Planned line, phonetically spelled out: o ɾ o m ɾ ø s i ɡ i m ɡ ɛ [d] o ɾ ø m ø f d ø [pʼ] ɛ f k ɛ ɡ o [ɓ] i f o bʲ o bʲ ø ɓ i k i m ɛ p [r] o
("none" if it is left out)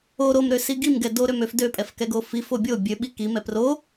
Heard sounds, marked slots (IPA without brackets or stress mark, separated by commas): d, pʼ, f, r